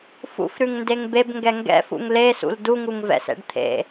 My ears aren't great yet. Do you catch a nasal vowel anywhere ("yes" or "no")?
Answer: no